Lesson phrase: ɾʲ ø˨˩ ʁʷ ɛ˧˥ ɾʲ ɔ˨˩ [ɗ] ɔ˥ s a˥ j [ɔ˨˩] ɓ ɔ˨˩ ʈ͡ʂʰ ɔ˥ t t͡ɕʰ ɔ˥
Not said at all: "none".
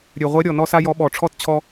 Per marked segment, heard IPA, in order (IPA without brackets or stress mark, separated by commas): n, ɔ˧˥